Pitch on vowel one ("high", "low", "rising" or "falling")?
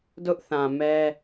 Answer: high